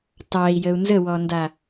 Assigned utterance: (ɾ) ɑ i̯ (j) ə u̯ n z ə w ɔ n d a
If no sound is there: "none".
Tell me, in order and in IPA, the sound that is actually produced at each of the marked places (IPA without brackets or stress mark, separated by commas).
t, j